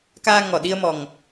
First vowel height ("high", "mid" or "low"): low